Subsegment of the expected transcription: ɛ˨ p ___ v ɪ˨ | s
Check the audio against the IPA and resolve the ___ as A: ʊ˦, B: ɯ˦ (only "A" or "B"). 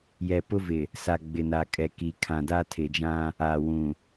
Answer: A